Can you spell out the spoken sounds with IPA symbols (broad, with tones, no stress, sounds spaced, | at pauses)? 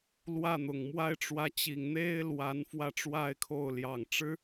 l w ä˥˩ n̪ ʊ˨˩ ŋ m w a˥ ɪ̯ ʈ͡ʂ w ä˧˥ t͡ɕ i˨˩ ŋ n̪ e˥ ɪ̯ l w a˧˥ n f w ä˥˩ ʈ͡ʂ w a˥ ɪ̯ kʰ o˥˩ ʊ̯ l j ɑ˨˩ ŋ ʈ͡ʂ ɻ̩˥